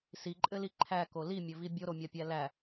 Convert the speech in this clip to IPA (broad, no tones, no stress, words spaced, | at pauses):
siǃʼɘli ǃʰæko limʲɘvi bʲoɾomʲapʲæ læ